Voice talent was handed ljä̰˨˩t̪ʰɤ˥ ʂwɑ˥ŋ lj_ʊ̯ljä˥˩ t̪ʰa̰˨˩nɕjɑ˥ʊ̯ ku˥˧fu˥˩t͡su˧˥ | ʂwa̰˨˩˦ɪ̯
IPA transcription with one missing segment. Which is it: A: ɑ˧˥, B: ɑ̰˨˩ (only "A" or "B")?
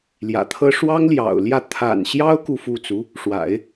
B